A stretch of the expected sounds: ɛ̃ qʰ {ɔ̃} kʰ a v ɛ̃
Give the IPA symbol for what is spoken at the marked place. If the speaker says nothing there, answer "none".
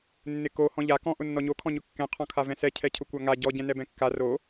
ɔ̃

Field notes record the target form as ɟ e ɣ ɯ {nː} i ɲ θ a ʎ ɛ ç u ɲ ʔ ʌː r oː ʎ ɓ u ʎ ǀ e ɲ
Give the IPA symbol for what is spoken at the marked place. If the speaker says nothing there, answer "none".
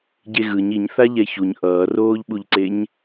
ɲ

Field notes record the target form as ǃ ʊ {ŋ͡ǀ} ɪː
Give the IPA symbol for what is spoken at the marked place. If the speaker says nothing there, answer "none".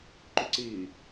ǀ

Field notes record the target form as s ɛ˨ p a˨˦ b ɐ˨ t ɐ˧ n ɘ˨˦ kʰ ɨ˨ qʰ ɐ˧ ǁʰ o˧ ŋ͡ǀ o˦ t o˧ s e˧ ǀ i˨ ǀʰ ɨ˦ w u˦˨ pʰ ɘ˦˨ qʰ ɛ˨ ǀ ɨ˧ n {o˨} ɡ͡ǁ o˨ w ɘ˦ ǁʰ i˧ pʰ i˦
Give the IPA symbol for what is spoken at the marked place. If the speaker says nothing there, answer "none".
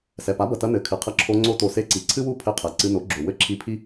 o˨˦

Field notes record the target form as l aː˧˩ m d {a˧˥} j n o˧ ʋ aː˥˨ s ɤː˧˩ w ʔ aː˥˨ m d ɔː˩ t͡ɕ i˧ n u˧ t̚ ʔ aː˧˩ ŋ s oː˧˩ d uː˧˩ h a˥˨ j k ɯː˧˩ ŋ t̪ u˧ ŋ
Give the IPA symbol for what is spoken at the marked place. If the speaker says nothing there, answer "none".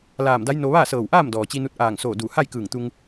a˧˥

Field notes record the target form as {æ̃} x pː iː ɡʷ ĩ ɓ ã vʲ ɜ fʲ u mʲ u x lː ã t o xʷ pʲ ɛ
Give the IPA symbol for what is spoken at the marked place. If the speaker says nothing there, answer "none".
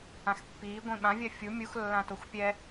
ã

